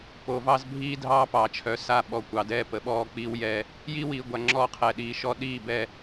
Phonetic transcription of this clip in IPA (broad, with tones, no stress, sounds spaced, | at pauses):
p o˨ v ɑ˦ z bʱ iː˦ dʱ ɑː˦ p ɑː˨ t͡ʃʰ œ˨˦ s a˦ ɓ ɔ˨ kʷ ɑ˨ d ɛː˦ p ə˨˦ ɓ ɔː˦ k͡p iː˦ w j ɛː˦ | j i˦ w iː˨ ɡʷ a˨ ŋ͡ǁ ɔː˦ qʰ ɛ˨ ɗ iː˨ ʃ ɔ˦ ɗ iː˦˨ b ɛ˨